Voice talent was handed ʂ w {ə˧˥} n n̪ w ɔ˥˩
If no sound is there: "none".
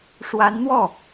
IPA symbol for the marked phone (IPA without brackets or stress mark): a˧˥